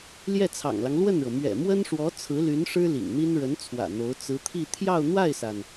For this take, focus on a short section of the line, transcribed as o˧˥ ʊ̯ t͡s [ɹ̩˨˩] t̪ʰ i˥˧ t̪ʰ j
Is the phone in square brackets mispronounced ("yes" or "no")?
yes